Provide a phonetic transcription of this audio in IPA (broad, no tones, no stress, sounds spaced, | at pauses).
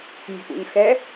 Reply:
mʲ ɔ̤ p ṵ ɲ x ɛ